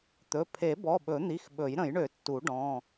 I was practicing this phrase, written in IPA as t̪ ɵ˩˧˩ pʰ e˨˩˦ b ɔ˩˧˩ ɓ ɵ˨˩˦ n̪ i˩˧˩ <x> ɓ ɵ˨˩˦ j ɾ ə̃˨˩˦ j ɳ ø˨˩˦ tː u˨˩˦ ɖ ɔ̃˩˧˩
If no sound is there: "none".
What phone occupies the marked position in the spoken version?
x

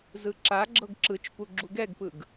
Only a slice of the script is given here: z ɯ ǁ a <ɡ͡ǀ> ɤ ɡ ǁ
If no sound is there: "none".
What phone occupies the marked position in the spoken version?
ɡ͡ǁ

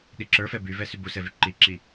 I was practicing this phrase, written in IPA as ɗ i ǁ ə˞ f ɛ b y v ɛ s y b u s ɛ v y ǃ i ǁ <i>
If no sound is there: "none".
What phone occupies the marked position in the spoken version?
i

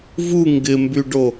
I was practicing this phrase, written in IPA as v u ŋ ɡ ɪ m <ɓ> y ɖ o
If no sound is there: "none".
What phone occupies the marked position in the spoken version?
b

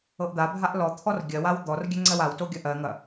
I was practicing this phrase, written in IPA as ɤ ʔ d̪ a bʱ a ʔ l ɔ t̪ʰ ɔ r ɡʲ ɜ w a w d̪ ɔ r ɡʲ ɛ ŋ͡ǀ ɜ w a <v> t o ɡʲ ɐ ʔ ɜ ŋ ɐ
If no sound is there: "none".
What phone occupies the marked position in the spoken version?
w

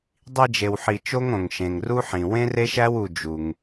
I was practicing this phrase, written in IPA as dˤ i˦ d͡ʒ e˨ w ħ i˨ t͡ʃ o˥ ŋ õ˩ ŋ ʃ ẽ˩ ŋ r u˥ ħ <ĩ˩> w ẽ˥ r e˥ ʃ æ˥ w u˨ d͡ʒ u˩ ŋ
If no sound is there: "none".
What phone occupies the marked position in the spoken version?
ĩ˩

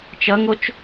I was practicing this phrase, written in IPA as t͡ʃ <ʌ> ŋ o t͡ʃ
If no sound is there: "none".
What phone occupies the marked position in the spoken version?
ʌ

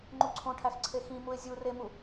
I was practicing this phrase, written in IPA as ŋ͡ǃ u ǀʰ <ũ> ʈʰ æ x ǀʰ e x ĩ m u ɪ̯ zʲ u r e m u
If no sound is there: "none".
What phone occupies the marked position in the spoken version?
õ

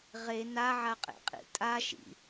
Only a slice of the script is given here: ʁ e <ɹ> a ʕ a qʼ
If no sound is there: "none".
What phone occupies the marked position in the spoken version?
n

